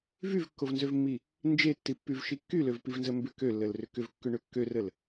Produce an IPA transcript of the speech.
vyvkːovnzøvmːi | nd͡ʒetːipːyvʃi kːyløvpivnzə mbʏ kølːəlrʏ kʏvkːʏɳø kːørəl

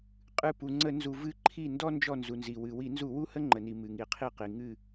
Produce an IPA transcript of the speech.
qʼɨ˧˩ pu˩ŋ͡ǀə˧˩˧nzu˩ vɨ˧˩ǃʰi˧˩ndɔ˦ nd͡ʒɔ˧˩nzu˩nzi˩ wɨ˩ wi˧˩˧nzu˧˩˧wu˦ hə˦ŋ͡ǃə˩ni˩ mɨ˩ŋi˩ qʰi˧˩qi˩ ŋɨ˧˩

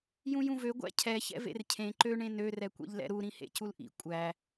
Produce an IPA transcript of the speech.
jũjũvø ɡʷæ̰cʰɛ çɛ̰vḛrcʰẽ ǃø ɳẽnø rɛkʷɛ̰ʎlɛ̰ɾu ɾĩhḛculʔḭ kʷʼæ

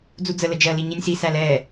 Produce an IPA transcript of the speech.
d͡zud͡zə ləd͡ʒɜ liɲinʲsi sælɛ

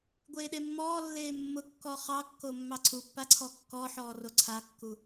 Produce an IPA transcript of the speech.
ɡʷeːɗemːɔːlːeː mːʊkːɔ χɑkːo mːɑǀʰupːa ǀʰɔkːɔħɔː roǀʰakːu

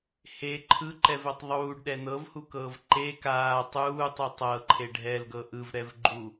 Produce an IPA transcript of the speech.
he ǃʰɯǃɛvɛtˤ ðˤuːɖɗɛ nɤvhukɤːv ǃe kaː tˤuːtˤi tˤɤǃʰe ɖʱɛlɡɤ ʔɯvɾɛvɡ͡ǃu

